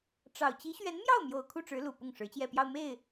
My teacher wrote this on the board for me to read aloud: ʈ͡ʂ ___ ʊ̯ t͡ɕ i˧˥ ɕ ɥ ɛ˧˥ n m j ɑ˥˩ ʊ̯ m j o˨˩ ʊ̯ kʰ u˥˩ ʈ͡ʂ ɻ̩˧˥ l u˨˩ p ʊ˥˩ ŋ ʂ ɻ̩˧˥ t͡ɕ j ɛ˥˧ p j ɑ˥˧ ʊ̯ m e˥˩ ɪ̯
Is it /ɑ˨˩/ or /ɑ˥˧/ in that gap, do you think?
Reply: ɑ˨˩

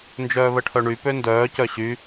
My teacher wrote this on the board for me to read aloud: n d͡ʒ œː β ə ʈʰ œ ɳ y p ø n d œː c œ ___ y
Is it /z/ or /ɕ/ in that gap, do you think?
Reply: ɕ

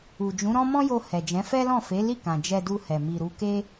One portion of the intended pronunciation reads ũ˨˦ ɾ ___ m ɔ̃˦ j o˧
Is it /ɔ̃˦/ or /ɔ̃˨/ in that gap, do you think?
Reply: ɔ̃˦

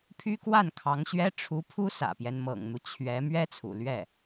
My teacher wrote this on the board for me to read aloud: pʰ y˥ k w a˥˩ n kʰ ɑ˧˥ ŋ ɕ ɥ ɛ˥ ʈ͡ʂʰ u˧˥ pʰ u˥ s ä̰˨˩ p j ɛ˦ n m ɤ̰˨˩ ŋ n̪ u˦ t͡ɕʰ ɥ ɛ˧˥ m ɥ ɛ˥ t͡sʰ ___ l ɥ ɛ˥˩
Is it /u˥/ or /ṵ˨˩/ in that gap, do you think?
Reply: ṵ˨˩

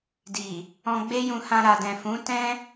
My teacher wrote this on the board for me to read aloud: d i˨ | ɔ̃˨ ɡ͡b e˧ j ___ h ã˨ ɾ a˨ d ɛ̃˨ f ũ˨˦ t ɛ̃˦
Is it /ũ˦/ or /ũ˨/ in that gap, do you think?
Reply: ũ˨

